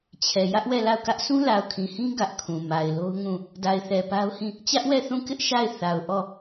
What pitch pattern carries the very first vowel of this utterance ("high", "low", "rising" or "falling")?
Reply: low